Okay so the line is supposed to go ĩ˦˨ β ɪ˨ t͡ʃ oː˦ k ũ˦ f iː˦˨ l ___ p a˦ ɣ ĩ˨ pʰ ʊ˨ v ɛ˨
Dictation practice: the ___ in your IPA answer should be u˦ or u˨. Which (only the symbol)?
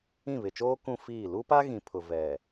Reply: u˦